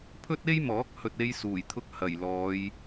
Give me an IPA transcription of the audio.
pʰ ɵ˥ t̚ e˥ j m ɔː˨˥ k̚ h ɵ˧ t̚ e˥ j s uː˨˩ j t̪ʰ ʊ˥ k̚ h ɐ˨˩ j l ɔː˨˧ j

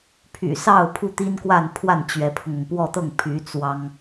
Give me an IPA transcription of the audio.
pʰ y̰˨˩ s ɑ˥˧ ʊ̯ pʰ u˥˩ t̪ i˥ n k w a˥˧ n pʰ w a˥˩ n t͡ɕ ɥ ɛ˧˥ pʰ ʊ˧ ŋ ʊ˩ ŋ p w ɔ˥˧ t̪ ɤ˥˩ ŋ pʰ y˧˥ t͡s w ɑ˥ ŋ

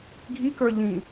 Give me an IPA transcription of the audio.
ɡʱ i k ə˞ ʎ ĩ

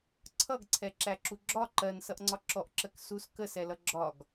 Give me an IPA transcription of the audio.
ǀʰ ʌ ɡ ǀʰ ɛ ǁ æ ǁ u ɡ͡ǁ ɒ ǃ ɜ n s ʌ ʔ ŋ͡ǀ ɒ ǁ ɔ ʔ ǁ ɜ k s u s k ə s ɛ l ʌ ɡ͡ǁ ɒ ɡ

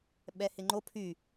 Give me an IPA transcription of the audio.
ɓ ɛ h ɪ ŋ͡ǃ o pʰ y

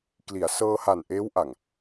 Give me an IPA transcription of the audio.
k l i˩˦ a̯ s ɤː˧ h a˨˩ n ʔ eː˦˥ w ʔ a˨˩ ŋ

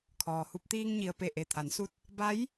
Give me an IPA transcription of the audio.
kʰ ɔː˩ h u˧ p̚ t̪ iː˧ ŋ ɲ i˩ ə̯ p e˧˩ ʔ e˧˩ t̪ʰ a˩˧ n s u˧ t̚ | b a˧˥ j

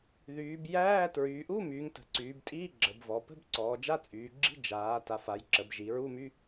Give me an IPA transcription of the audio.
ð yː˩˧ b j æː˧˥˧ t ɹ yː˩˧ ʔ u˧˥˧ m yː˩˧ ŋ t ə̤˩˧ ǀ yː˩˧ b tʼ iː˧˥˧ ɡ͡ǁ ə˩˧ b v ɔ˩˧ p ə̤˧˥˧ b ǀ ɔː˩˧ d͡ʒ a˧˥˧ t͡sʼ yː˩˧ ɡ͡ǁ i̤˧˥˧ d͡ʒ aː˩˧ t a˩˧ f a˩˧ j ǁ ə˩˧ b ʒ i˩˧ ɹ u˧˥˧ m y˧˥˧

